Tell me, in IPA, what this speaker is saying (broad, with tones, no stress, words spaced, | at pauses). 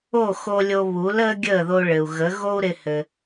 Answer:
o˥˩xo˧ lʲo˧βu˩˥l əː˥ɡʲəː˥˩ðo˧ ɭɘ˩u̯ɣə˩˥ ɣo˥u̯ɾɪ˧ hɘ˩